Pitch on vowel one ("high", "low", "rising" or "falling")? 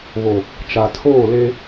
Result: low